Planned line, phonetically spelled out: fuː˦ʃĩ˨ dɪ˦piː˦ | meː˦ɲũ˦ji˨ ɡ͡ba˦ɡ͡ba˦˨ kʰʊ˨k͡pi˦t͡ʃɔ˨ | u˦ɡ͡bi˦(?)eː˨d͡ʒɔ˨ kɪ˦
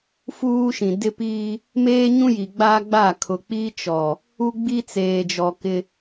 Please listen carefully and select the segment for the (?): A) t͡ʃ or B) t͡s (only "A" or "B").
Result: B